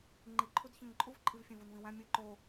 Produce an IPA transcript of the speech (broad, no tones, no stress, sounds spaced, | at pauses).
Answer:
ŋ͡ǃ i ǃʰ u d ç ẽ ŋ ǃʼ u v ǃʼ i v fʲ ẽ v u n v ĩ w æ̃ mʲ ɯ ǃ o